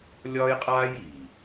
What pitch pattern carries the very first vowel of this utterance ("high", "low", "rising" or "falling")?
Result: high